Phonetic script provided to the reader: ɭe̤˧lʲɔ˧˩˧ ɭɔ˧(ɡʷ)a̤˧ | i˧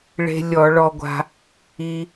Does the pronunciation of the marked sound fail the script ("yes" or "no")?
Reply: no